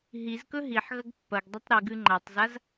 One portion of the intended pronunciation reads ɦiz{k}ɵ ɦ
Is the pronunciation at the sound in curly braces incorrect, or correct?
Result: correct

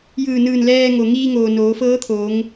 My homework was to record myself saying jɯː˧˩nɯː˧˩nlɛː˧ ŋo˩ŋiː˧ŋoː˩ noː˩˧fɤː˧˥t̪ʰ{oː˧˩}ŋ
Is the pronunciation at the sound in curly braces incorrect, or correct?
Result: incorrect: oː˩˧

